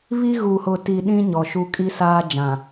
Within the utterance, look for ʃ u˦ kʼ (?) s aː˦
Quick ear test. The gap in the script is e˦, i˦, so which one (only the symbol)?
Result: i˦